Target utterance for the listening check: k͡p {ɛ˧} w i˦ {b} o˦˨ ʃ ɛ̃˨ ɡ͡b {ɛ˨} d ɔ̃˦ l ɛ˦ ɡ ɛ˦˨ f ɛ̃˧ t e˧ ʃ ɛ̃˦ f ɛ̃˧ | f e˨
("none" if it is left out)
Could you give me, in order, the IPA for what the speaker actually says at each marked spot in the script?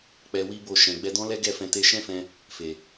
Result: ɛ˧, b, ɛ˧

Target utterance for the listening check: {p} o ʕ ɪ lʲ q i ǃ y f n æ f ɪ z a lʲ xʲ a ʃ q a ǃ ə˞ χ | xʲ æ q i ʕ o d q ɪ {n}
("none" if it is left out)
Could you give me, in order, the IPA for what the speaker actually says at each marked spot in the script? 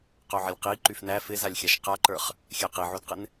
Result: q, n

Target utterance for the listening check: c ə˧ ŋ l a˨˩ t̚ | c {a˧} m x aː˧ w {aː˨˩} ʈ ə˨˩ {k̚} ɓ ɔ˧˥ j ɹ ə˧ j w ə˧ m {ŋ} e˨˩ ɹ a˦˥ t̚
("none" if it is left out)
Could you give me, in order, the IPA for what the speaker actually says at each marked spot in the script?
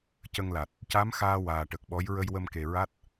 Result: a˧˥, aː˨˩, k̚, k

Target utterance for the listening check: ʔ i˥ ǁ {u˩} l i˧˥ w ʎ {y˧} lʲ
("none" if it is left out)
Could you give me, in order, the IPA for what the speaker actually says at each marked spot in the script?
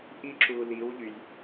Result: u˧, y˧

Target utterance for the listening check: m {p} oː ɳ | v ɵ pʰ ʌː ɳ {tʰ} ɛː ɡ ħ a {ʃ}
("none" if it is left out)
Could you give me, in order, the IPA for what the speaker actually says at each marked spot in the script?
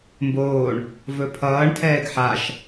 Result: b, tʰ, ʃ

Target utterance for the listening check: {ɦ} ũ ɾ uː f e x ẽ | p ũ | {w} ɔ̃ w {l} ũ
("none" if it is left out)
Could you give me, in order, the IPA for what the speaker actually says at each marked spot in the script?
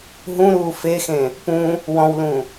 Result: ɦ, w, l

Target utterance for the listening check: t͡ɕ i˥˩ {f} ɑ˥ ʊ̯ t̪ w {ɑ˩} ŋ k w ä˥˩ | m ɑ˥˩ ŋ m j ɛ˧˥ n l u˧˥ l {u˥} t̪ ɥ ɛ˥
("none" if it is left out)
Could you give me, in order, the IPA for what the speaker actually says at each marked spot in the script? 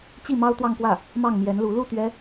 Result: m, ɑ˥˧, u˥˩

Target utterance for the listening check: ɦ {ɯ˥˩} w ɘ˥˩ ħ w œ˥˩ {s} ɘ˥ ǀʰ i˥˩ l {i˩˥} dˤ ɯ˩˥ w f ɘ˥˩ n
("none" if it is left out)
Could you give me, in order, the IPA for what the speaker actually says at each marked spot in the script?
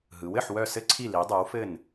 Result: ɯ˩˥, s, i˩˥

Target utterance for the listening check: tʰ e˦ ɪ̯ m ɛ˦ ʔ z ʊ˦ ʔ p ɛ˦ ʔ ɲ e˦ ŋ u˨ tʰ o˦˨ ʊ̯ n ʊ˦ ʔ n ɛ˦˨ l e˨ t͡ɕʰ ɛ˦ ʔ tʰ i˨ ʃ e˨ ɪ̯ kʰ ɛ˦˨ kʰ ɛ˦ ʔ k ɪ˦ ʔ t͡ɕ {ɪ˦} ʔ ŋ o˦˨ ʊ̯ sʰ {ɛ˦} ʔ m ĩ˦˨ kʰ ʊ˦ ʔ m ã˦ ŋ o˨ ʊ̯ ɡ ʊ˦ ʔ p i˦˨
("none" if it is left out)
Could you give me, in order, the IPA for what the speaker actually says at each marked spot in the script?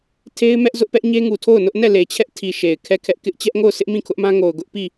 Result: ɛ˦, ɪ˦

